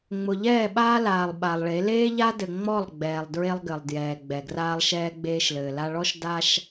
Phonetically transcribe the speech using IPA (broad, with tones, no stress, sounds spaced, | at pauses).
ŋ͡m ʊ˨ ʎ ɛː˦˨ ɓ aː˦ l aː˨ lˠ ɓ a˨ lˠ ɭ e˨˦ l eː˦ ʎ a˦ d ɘ˨ ŋ͡m ɔ˦˨ lˠ ɡ͡b ɛː˨ lˠ d ɹ e˦ lˠ ɡ ɘ˨ lˠ d j ɛː˨ ɡ͡b ɛ˨ ɡ r aː˦ lˠ ʃ ɛː˦ ɡ͡b eː˦ ʃ l ɘː˨ l a˦ ɭ ɔ˦ ʃ d a˦ ʃ